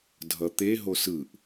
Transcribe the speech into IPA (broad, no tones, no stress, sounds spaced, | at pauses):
dʱ ʌ t̪ e ɦ o s ɯ ʔ